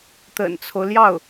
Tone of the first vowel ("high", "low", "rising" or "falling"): low